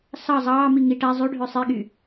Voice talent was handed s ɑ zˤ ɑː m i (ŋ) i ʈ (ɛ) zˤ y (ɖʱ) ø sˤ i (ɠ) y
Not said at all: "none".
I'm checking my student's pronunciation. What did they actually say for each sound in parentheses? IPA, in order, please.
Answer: ŋ, æ, ɖʱ, ɠ

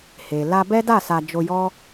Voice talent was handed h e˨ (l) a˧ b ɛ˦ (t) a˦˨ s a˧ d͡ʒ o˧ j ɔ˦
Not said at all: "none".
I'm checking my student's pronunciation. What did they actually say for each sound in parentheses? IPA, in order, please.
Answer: l, d

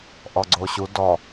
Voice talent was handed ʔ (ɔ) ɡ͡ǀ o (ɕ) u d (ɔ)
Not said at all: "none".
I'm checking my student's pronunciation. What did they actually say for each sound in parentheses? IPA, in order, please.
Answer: ɔ, ɕ, ɔ

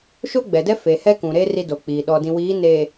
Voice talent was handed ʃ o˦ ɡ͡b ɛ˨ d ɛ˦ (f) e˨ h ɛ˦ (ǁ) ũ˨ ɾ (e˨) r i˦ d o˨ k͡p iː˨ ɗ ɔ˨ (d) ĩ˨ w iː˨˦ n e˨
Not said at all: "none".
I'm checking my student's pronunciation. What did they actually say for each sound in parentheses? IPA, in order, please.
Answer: f, k, e˦, d

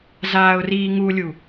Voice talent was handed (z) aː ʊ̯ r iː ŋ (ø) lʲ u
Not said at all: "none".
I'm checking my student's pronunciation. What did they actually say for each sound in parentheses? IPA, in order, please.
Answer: z, u

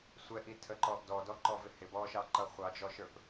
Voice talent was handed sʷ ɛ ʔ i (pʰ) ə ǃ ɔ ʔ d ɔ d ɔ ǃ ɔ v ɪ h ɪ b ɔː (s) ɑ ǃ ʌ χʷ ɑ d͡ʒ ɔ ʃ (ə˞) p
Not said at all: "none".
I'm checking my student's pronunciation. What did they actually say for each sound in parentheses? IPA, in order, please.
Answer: tʰ, ʃ, ə˞

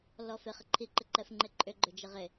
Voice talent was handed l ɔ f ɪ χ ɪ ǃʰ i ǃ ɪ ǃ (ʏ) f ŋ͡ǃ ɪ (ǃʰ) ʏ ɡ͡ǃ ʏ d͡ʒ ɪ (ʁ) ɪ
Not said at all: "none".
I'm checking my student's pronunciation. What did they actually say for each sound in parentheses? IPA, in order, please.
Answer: ɛ, ǃʼ, ʁ

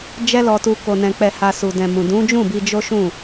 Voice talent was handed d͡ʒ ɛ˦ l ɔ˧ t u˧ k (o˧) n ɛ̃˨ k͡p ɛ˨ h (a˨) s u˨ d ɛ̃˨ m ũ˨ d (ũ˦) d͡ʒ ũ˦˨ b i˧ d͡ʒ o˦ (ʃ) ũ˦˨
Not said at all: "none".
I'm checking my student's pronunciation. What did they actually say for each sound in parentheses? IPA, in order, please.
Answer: o˨, a˨, ũ˨˦, ʃ

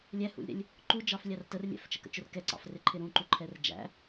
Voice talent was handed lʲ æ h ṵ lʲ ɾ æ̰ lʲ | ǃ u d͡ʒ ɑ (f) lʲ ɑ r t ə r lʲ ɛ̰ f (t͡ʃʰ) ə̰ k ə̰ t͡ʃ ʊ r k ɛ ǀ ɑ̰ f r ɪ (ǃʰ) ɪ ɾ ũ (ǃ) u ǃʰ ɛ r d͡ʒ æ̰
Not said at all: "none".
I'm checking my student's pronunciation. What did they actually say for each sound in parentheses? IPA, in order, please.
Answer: f, t͡ʃ, ǃʰ, ǃ

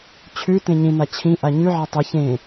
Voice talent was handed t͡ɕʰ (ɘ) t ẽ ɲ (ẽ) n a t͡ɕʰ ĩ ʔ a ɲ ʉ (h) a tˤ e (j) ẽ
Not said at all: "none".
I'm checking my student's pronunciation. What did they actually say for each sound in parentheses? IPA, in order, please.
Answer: ʉ, ĩ, ʕ, ç

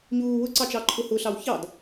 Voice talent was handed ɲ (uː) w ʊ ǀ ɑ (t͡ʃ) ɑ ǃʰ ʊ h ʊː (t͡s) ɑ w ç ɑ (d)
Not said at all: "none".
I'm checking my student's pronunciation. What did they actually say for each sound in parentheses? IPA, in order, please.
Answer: uː, t͡ʃ, ɬ, d

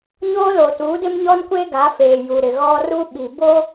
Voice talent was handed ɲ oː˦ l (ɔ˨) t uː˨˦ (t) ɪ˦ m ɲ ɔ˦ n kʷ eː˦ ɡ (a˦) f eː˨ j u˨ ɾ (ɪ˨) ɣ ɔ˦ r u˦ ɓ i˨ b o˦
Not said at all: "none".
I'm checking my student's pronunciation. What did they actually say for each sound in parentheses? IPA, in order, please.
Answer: o˨, d, a˨˦, ɪ˨

